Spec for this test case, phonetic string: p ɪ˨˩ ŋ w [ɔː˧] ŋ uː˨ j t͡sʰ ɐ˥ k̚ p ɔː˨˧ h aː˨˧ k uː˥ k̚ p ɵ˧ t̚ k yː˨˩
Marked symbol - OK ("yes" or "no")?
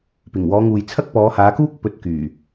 no